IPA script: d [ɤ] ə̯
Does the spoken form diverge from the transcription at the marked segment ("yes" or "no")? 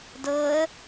no